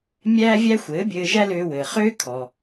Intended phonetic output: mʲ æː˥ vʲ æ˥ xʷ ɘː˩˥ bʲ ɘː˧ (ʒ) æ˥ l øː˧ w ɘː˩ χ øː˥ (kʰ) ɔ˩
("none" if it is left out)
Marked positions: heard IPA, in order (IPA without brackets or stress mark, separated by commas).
ʒ, kʰ